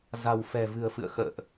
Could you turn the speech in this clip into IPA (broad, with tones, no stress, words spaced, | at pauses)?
za̤˨˩wfɛ̤˨˩vɨ̤˨˩ə̯fɨ̰˧˨ə̯ xə̰ː˧˨ʔ